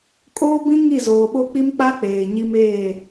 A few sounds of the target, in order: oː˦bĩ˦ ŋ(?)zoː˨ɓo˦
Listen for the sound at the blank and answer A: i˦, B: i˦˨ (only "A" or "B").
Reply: B